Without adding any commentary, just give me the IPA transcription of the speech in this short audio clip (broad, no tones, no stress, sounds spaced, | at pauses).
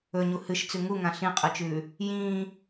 ɵ ɲ u h ɨ ʃ t͡s ʉ ŋ u ŋ ã ɬ ĩ qʼ ɨ t͡ʃ ʉː | j ĩː